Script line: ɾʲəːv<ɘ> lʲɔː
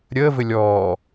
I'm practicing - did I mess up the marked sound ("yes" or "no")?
no